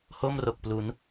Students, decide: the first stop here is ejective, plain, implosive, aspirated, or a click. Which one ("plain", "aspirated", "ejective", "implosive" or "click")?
plain